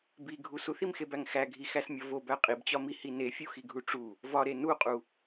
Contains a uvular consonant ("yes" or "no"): yes